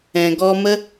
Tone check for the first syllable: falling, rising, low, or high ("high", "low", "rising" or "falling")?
low